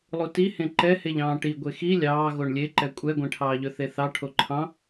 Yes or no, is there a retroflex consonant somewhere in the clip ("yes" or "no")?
yes